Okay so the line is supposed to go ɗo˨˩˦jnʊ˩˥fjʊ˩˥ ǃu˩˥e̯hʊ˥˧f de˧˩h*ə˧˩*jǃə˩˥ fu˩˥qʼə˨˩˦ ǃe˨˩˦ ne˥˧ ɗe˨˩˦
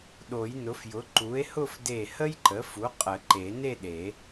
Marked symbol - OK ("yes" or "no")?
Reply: no